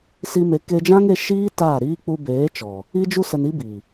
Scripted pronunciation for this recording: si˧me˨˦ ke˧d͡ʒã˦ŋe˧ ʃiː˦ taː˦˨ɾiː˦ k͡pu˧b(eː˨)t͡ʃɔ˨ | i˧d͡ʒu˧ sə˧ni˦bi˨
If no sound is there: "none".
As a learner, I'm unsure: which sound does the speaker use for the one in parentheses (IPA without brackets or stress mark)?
eː˨˦